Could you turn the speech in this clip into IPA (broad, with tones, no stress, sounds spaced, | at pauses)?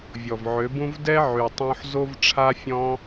vʲ ɔ˨ v ʕ ø˨˦ b ũ˦ v d ɛ˦ ʕ y˨ tˤ õ˧ ħ z o˦ v ʈ͡ʂʰ a˦ fʲ ɔ̃˦